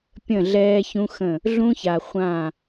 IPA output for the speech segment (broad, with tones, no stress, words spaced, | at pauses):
pʲə̃˦˨ɮɛː˦çũ˦xə̃˦˨ | ɮũ˦ça˨ χʷã˦˨